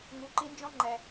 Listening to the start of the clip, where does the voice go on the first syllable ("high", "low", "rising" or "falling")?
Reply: rising